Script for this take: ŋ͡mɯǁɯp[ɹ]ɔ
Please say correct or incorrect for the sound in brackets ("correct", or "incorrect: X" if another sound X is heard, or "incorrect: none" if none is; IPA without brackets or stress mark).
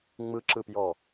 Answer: incorrect: j